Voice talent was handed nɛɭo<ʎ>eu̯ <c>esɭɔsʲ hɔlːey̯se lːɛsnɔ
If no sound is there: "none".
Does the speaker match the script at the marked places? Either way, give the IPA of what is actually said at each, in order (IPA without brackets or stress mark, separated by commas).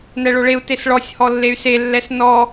ɭ, t